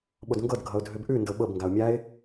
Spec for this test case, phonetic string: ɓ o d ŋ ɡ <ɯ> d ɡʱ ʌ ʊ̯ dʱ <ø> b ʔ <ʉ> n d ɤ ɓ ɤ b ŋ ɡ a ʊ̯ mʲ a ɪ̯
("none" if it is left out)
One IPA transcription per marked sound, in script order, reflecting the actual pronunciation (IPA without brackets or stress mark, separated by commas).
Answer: ɤ, ø, ʉ